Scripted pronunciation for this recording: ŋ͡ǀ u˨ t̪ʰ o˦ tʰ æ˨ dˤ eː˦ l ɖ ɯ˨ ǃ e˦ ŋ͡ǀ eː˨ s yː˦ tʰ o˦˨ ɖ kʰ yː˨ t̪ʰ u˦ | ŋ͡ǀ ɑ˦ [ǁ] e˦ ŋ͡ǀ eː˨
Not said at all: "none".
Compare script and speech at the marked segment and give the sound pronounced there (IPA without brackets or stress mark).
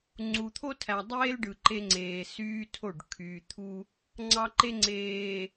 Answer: ǃ